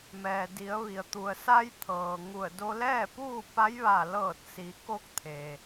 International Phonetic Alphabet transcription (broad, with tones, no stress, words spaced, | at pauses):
mɛː˩di˩˧ə̯ ʋi˩ə̯t̪u˩ə̯sa˧j t̪ʰɤː˩ŋu˧˩ə̯ do˧lɛː˥˨puː˥˨pa˧˥j ʋa˧˩ lɤː˧˩t̚si˩˧ko˧k̚ t̪ʰe˩